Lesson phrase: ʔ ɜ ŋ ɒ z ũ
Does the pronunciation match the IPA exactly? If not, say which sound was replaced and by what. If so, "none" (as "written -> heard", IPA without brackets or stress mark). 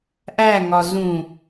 ɜ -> æ